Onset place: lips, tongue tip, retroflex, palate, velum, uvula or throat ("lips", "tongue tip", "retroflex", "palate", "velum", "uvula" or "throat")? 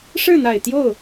retroflex